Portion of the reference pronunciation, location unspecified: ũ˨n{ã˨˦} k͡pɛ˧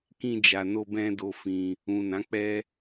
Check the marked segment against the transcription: correct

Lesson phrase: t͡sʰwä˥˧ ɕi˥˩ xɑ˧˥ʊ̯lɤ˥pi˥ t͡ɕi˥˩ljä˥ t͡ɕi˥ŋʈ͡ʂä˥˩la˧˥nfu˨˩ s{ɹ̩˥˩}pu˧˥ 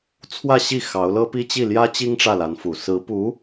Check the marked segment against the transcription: incorrect: ɹ̩˧˥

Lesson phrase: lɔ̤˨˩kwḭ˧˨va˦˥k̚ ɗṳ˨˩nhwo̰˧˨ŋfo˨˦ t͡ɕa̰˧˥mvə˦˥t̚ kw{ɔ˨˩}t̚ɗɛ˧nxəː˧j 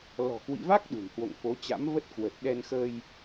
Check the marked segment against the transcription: incorrect: ə˨˩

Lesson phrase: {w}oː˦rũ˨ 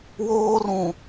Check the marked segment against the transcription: correct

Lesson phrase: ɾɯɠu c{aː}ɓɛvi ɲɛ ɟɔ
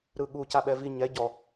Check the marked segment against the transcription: incorrect: a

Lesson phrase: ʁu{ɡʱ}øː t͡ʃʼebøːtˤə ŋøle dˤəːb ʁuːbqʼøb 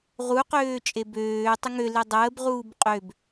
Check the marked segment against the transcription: incorrect: q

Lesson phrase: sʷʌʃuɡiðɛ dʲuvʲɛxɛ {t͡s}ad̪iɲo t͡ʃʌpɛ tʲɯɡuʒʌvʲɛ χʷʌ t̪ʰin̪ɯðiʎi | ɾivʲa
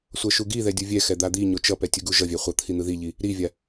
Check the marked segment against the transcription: incorrect: d̪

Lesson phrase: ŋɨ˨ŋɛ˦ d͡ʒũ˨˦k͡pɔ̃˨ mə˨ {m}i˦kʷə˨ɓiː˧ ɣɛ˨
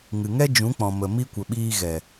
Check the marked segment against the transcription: correct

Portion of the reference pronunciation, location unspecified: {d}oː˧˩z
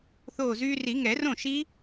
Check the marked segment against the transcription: incorrect: θ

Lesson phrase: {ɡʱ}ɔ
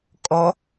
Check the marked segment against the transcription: incorrect: kʼ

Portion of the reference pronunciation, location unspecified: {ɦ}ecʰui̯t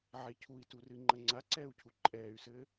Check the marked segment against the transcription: incorrect: ʕ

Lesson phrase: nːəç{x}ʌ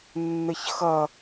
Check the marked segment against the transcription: correct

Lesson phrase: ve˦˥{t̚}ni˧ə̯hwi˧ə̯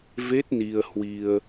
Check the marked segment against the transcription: correct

